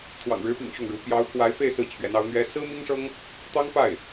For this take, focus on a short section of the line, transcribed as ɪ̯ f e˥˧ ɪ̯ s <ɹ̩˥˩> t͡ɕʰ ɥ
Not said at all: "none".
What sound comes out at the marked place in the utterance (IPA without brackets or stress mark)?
ɹ̩˥˩